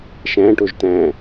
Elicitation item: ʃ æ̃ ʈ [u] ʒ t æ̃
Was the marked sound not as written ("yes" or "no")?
yes